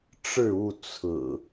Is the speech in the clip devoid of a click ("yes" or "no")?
yes